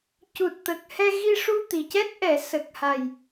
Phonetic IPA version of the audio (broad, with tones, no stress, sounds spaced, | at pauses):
c u˨˩ t̚ t̪ ə˨˩ k̚ h ɛ˧ ɣ i˧ ʂ u˧ t̪ i˨˩ c ɛ˦˥ t̚ ʔ ɛ˨˩˦ s ə˨˩ k̚ h a˨˩ j